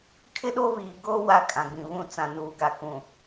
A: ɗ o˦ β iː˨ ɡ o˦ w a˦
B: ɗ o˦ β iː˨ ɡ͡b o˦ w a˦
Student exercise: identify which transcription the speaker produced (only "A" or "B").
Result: A